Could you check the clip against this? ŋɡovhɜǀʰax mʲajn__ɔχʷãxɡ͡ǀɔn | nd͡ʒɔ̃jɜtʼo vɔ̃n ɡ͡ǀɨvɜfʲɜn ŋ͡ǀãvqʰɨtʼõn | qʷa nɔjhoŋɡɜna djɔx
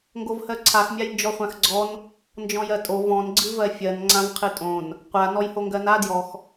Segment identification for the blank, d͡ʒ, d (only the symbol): d͡ʒ